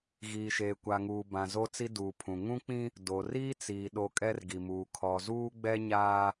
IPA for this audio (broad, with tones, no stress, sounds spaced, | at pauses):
ɣ iː˨ ʃ eː˨ kʷ a˨ ŋ uː˨ b ã˨ z o˦ t͡s i˦ d uː˨ pʰ ũ˨ ŋ ũ˦ k͡p ĩ˦ | d o˨ r iː˦ t͡s iː˨ ɗ o˨ kʼ ɛ˦ r ɡ i˨ m uː˨ kʰ ɔ˨ z uː˦ ɡ͡b ɛ˦ ɲ aː˦